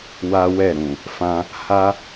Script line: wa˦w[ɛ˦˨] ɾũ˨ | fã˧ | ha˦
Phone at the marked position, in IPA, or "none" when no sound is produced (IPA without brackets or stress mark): ɛ˦˨